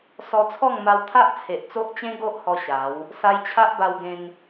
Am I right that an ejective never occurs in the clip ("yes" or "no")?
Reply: yes